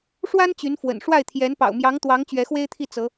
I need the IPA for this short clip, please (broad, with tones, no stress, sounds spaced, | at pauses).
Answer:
ʂ w a˥ n t͡ɕ y˧˥ n f w ə̰˨˩ n ʂ w a˥˩ ɪ̯ t̪ʰ j ɛ˧˥ n p ɑ̰˨˩ ʊ̯ m j ɑ˧˥ ŋ t̪ w ɑ˧˥ ŋ t͡ɕ ɥ ɛ˧˥ x w e˥ ɪ̯ t̪ʰ i˥˩ t͡s ɤ˧˥